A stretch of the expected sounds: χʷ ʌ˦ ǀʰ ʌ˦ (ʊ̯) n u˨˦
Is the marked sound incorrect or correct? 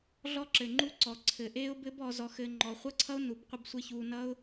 correct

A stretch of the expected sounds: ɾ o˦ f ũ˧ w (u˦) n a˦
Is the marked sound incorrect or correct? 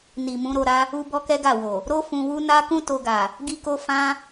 correct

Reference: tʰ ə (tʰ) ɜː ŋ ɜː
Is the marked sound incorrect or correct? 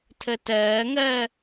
incorrect: t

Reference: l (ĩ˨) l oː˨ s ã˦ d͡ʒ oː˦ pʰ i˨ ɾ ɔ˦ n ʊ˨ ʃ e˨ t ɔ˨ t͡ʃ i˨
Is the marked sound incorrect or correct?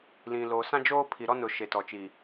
correct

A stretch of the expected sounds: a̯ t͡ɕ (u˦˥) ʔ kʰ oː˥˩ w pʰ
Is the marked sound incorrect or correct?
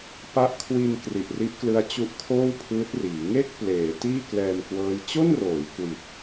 correct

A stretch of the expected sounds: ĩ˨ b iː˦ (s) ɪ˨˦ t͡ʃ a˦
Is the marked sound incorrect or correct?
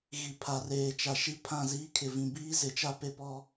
incorrect: z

